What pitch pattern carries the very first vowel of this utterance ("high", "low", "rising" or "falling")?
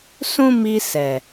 high